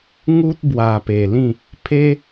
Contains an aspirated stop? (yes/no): yes